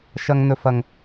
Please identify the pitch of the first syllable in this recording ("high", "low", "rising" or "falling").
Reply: high